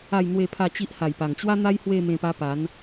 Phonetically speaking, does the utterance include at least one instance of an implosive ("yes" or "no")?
no